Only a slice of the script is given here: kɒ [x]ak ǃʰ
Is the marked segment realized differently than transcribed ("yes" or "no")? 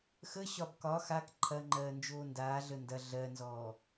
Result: no